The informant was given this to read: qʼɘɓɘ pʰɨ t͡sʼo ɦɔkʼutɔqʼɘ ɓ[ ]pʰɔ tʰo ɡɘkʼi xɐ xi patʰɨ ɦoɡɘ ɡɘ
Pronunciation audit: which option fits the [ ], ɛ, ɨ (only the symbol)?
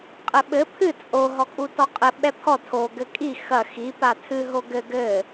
ɛ